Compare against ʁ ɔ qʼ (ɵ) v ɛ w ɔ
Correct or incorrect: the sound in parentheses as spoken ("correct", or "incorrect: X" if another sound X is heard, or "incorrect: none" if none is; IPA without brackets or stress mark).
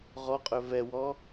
correct